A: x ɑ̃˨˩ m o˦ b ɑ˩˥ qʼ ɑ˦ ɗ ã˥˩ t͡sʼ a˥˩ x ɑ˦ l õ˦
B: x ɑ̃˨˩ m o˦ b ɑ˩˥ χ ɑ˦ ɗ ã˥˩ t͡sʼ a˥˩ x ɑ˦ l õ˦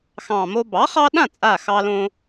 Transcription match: B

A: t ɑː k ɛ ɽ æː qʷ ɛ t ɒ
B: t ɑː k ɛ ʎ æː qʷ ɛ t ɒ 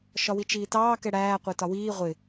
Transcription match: A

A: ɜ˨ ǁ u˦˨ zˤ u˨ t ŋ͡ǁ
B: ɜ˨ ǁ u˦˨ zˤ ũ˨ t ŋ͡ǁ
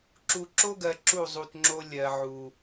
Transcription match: A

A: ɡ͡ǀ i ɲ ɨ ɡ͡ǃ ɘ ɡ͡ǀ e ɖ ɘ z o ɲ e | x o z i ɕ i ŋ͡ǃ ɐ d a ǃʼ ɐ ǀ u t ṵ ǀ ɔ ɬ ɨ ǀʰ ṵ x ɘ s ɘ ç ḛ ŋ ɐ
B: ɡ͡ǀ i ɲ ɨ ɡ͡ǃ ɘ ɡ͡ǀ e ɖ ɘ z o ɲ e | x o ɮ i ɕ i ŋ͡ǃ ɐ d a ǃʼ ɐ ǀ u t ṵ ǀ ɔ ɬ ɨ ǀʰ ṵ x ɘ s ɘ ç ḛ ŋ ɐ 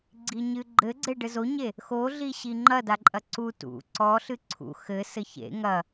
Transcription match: B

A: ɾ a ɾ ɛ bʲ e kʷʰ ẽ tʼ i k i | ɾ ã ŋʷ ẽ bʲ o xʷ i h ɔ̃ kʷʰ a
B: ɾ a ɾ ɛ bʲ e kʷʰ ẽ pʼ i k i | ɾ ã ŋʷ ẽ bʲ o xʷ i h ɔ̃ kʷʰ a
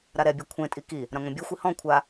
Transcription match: A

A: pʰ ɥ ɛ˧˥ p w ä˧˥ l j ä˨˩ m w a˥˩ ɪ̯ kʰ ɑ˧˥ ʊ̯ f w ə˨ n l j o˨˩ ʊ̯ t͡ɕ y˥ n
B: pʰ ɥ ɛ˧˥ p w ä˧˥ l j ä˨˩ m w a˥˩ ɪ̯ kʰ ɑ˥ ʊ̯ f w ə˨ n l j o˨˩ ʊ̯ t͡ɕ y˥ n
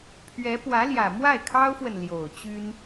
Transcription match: B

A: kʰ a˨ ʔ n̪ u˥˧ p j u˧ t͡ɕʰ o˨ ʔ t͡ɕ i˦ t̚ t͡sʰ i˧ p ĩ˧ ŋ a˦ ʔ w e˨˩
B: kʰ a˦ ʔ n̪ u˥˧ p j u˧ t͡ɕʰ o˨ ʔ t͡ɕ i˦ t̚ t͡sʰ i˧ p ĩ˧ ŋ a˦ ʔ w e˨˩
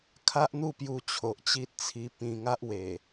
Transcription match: B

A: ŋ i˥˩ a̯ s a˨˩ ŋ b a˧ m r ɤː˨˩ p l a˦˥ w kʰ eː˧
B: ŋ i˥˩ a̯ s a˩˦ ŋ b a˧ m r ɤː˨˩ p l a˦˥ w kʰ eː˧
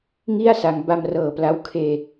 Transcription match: B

